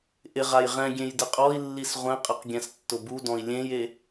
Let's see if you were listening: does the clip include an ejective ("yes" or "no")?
yes